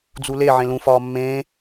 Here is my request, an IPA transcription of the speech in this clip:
d͡z u l e ʕ ẽ l ũ f ɒː mː ẽː

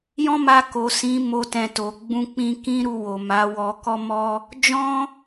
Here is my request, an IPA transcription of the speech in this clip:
j ɔ̃˦ m a˧ k o˨ s ĩ˨˦ m o˧ t ɛ̃˨ t o˨ ɡ͡b ũ˧ k͡p ĩ˧ k ĩ˦ ɾ u˧ w o˨ m a˨˦ w ɔ˧ k ɔ˦ m ɔ˦ | d͡ʒ ɔ̃˦

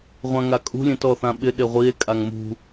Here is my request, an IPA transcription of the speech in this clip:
ʁʷ ã ŋ a kʼ ṳ lʲ ẽ t ɔ θ ã ɓ ɪ ɗ e ʁʷ i e̯ kʼ a ŋ m ṳ

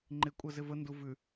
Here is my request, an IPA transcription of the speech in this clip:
ŋ͡ǃ ɪ kʷʼ əː z ɪ v ə n d u v ʉ

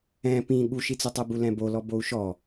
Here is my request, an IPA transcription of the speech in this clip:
ɛ̃ p ĩ ɠ u ʃ i t͡s ʊ tˤ ɛ b u l ɛ̃ b o l ɔ b o u̯ ʃ ɔ

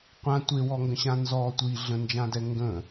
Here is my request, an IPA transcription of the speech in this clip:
qʷ ã tʷ e w ɔ ŋ ɡ ə̃ ɕ ã n z ɔ tʷ i ɮ ə̃ n d͡ʒ ã d ɛ ŋ ɡ ə̃

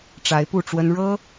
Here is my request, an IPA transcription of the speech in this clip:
ʈ͡ʂ a˧˥ ɪ̯ p u˥˩ ʈ͡ʂ w ə˥ n ɻ ɤ˥

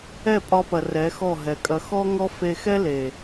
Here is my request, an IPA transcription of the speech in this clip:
ɛ˦˨ pʼ ɒ˧ p ɐ˨ r ɛ˨˦ x ɔ˦˨ ɦ ɛ˨ kʼ ɐ˧ x ɔ˦ ŋ ɔ˦ f e˧ x ɛ˦ l e˨

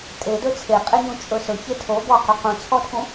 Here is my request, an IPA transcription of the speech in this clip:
tʼ e d ɵ t͡sʰ e qʼ e ɲ ũ t͡ʃʼ ɵ s ɵ ç e tʰ o b ɔ q ɵ q ũ t͡sʰ ɔ tʰ ũ

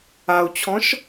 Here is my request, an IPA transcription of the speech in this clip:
a u̯ t͡ɕʰ ɔ̃ ʃ

